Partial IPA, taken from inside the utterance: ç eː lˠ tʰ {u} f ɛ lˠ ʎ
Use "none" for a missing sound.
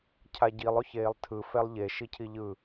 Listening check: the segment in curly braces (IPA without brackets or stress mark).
ɯ